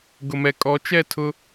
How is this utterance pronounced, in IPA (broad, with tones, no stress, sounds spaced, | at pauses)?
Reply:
ɡ ʊ˨ m ɛ˨ kʼ ɔ˨˦ t͡ʃ ɛ˦˨ tʰ ʊ˦